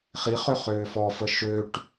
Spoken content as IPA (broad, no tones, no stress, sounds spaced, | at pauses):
χ i χ ø χ øː f ɔ f ə ʃ ø ʈ